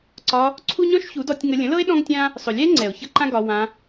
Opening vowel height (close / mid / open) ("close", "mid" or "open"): open